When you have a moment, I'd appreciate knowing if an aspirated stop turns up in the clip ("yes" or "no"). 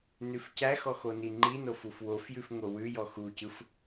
no